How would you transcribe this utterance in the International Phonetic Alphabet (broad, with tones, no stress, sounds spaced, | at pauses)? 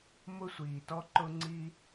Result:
m ʊ˧ sʷ iː˨ t ɔ˧ ǃ ʊ˧ ŋ͡ǀ i˧